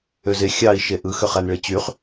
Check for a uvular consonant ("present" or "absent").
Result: present